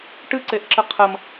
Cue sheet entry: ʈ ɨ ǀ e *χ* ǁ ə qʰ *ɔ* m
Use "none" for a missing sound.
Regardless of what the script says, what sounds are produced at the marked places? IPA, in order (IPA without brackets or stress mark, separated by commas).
ʔ, ə